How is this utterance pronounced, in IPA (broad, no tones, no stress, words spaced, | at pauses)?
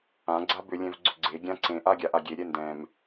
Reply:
ã ɡ͡ǀabʏ lʲɛ̃vɡ͡ǀʏɡ͡ǀe ɡʲãǀẽ ʔaɡʲaʔa ɡʲe ɾʲɛndɛ̃m